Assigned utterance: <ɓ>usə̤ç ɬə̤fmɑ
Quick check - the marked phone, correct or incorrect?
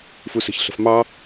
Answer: incorrect